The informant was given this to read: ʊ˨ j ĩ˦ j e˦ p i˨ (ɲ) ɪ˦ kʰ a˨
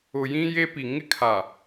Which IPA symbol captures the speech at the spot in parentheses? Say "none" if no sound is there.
ŋ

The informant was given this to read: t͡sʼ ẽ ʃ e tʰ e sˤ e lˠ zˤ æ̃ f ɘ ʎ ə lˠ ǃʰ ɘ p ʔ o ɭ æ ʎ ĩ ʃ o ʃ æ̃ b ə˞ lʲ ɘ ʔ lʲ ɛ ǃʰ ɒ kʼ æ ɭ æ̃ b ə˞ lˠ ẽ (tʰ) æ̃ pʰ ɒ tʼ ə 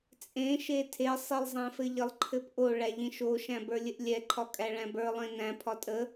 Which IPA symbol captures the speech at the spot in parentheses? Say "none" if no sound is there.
n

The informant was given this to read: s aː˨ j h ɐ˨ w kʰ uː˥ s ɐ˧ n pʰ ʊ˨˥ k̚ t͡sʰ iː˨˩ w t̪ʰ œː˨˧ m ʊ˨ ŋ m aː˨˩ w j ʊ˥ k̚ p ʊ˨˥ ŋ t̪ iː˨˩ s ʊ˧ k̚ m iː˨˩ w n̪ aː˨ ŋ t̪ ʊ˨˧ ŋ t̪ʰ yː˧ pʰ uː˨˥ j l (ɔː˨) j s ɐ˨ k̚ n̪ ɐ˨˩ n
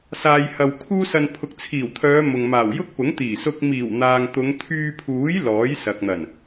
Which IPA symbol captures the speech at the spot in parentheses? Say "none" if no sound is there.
ɔː˨˥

